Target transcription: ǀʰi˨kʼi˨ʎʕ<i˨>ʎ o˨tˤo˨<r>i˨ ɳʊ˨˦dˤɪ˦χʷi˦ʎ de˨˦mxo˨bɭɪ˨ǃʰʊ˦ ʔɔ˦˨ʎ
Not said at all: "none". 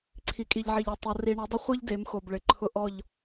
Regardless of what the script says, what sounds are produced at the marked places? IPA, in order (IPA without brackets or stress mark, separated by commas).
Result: i˨, r